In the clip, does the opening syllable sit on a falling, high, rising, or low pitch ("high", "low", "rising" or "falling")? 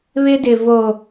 high